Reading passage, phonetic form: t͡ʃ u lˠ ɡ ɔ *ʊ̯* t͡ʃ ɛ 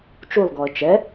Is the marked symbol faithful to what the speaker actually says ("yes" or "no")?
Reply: no